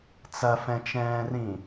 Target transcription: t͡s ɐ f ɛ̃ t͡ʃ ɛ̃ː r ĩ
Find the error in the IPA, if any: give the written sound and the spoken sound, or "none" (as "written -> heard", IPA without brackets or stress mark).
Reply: none